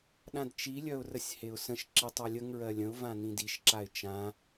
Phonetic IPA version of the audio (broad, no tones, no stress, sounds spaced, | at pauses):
ɗ ã d t͡ʃ i lʲ œ ʊ̯ r ə sʲ h e ʊ̯ s ə̃ ʃ ǁ i tˤ œ lʲ ə ŋ ɹ ɜ lʲ ə̃ ʊ̯ v ã n ĩ d i ʃ ǁ a ɪ̯ t͡ʃ ã